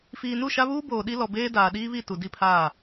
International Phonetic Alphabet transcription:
f iː˨ n u˦˨ ʃ a˦ β uː˦ b oː˨ ɗ i˦ l ɔ˨ b eː˦ d aː˨ ɗ iː˦ β i˦˨ t u˨ d i˦ pʰ aː˦˨

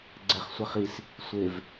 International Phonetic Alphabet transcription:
ɡ͡ǀ ɛ χ sʷ ɛ χ i s | sʷ e v

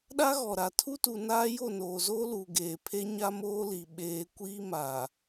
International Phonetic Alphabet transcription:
ɗ a˦ ɣ ɔ˨ ɾ a˨ tʰ u˦ t u˨ n aː˦ j o˦˨ n oː˨ z oː˦ l uː˨ ɡ eː˨ pʰ e˦ ɲ a˦ m oː˦ l i˨ ɓ eː˨ kʷ iː˦ m a˨

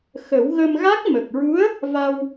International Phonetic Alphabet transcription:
x ə˨˩˦ w ɣ ə˧ m ɣ a˦˥ k̚ m ə˨˩ k̚ ɹ u˧˥ ə̯ | v a˧ w

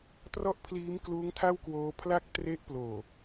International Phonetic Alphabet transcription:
t r ɔ˥˩ ʔ pʰ l iː˦˥ m k l uː˦˥ ŋ tʰ a˥˩ w k w oː˧ pʰ l a˥˩ k̚ t r e˦˥ ʔ p l oː˨˩

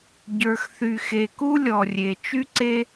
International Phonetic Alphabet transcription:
ɟ ə˞˧ x θ y˧ x e˧ k u˥ lʲ ɔ˧ rʲ e˧ t͡ʃ y˥ ǀ e˥

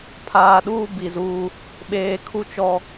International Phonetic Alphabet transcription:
pʰ aː˨ ɗ uː˦ b i˨ z uː˦ | ɓ eː˨ kʰ u˦ t͡ʃ ɔ˦

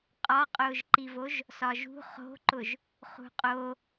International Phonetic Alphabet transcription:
qʼ ɒ qʼ ʊː ʒ ǃ i v o ʒ | s ɒ ʒ ṳ χ o̤ ǃ ʊ ʒ | χ ṳ qʼ o

